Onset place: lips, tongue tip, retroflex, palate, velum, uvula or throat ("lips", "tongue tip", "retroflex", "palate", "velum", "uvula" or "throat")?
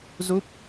tongue tip